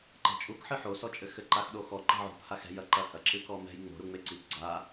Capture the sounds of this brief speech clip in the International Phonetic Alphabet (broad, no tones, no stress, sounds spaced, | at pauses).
ǃ ɛ̤ t͡ʃʼ u k ħ ɨ ħ o s ɔ t͡ʃʼ ɘ x ɘ ǃ a x ɗ o x ɔ ǃ ɛ̤ ʕ ṳ p h a x ɛ̤ j ɐ ǃ ɐ h ɐ ǁ ɨ k ɔ m ɛ̤ j ŋ͡m o̤ ɾ u ŋ͡m e ǀ i k ɡ͡ǀ a